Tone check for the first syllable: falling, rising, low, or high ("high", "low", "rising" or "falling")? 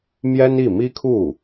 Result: high